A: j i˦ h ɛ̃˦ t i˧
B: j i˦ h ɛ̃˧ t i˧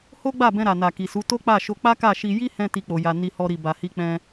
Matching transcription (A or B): B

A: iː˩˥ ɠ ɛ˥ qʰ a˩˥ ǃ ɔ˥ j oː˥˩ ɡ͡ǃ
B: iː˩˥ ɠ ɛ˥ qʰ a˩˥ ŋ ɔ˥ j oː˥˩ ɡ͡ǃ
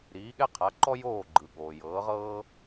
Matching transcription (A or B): A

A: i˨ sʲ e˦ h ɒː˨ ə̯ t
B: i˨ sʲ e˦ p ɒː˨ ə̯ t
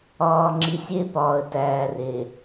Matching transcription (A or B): B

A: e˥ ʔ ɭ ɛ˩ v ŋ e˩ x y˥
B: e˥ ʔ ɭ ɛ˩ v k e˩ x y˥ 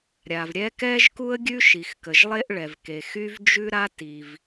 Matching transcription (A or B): B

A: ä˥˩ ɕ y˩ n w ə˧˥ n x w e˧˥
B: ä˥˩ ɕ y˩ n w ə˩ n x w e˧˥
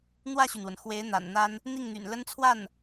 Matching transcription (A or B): B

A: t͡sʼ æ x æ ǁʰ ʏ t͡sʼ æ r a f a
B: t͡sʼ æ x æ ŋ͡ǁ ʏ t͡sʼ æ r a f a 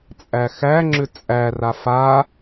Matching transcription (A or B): B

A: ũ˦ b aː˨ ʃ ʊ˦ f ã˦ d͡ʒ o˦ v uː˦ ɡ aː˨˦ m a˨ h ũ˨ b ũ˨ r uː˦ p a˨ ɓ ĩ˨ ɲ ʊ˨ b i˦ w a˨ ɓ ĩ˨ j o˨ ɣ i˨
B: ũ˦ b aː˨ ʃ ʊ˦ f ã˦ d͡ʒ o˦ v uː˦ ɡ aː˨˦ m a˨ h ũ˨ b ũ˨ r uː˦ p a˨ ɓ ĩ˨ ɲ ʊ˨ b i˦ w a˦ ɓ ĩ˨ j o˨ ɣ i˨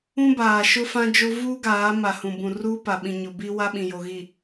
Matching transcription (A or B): B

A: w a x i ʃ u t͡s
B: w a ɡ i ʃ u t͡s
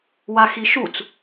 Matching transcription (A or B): A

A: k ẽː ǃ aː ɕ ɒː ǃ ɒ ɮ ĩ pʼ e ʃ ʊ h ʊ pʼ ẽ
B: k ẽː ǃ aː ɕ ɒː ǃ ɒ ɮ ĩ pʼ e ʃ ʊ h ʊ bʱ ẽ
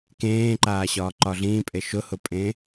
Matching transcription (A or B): A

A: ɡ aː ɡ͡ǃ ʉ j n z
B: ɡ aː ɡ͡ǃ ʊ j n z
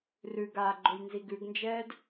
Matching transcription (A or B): B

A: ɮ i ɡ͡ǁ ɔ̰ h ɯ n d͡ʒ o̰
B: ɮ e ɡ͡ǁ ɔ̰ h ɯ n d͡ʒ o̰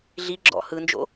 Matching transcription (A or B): A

